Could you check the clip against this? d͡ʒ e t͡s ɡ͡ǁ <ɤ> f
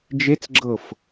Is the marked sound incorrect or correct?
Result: correct